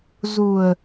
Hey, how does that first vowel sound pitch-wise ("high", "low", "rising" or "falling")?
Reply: low